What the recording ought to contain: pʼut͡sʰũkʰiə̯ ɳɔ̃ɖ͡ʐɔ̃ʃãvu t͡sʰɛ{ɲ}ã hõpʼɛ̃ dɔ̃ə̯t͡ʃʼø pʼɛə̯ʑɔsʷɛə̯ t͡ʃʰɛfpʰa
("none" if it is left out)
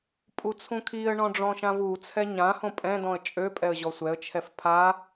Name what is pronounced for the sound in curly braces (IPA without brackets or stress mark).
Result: ɲ